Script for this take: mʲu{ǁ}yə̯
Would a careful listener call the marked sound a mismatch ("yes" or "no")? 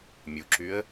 no